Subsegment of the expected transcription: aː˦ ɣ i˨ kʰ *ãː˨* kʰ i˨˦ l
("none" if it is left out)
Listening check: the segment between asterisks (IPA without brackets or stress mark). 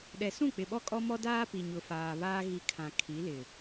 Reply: ã˨